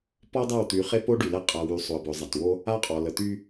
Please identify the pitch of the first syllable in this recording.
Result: high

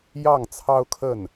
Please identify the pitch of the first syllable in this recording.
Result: falling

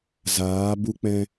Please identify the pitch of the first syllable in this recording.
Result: rising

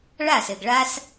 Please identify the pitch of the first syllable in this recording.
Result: falling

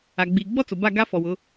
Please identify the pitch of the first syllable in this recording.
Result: low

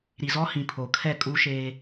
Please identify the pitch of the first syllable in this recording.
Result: low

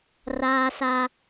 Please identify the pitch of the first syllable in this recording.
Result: high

